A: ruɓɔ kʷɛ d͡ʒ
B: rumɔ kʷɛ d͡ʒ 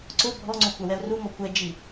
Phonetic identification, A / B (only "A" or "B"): B